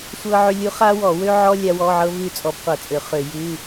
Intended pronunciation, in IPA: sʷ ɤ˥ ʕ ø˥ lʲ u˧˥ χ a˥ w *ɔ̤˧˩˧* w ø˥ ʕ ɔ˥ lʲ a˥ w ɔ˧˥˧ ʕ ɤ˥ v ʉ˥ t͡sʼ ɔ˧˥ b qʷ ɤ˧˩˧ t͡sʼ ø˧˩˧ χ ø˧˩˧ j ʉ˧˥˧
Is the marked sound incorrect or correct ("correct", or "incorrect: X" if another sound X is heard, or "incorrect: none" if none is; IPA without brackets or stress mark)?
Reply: incorrect: ɔ˧˩˧